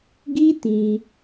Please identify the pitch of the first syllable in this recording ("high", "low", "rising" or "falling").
high